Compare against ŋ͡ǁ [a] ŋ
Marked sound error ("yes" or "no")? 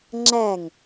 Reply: yes